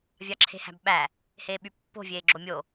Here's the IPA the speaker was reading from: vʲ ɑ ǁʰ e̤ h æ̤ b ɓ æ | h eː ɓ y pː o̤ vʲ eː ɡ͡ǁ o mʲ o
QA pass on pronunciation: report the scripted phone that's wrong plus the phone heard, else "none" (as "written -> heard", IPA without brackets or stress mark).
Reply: none